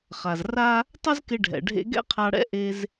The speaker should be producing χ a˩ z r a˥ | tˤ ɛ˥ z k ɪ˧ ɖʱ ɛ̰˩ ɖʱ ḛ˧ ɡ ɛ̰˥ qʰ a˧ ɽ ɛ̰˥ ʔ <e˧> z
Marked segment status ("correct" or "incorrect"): correct